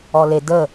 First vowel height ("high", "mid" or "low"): mid